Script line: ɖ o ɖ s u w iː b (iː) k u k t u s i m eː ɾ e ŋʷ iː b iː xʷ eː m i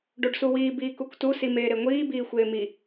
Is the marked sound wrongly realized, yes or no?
no